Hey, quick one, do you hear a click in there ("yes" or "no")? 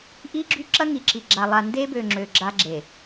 yes